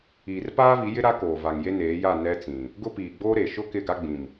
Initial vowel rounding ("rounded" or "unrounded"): unrounded